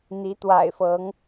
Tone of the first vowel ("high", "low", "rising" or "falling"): rising